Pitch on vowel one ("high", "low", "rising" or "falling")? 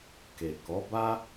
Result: low